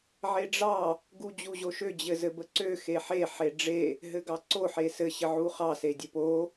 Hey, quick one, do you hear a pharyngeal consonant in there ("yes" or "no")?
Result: yes